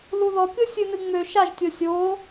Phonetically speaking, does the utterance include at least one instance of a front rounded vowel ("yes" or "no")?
yes